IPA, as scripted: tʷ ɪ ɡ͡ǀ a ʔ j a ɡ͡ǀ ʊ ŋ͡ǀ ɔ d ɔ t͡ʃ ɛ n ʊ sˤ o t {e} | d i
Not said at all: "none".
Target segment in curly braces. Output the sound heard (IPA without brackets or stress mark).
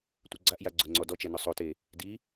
e